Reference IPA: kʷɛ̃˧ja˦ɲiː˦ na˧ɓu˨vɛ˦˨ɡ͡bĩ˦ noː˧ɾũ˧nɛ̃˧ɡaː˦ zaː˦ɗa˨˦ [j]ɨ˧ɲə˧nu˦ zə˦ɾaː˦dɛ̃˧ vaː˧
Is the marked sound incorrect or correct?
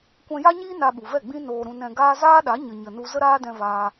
incorrect